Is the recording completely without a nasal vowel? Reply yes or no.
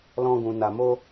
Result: no